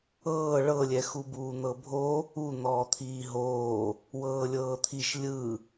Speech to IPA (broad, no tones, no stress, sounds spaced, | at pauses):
ɤː ɭ ɤ lʲ ɛ x u b uː n̪ ɤ bʱ o | u n̪ ɔː t̪ʰ iː ɦ oː | w ɤː lʲ ɤː t̪ʰ i ʃ lʲ ɯ